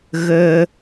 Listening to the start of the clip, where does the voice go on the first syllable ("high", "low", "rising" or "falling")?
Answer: high